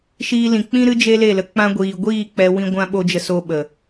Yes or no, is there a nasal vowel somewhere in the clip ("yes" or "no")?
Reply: yes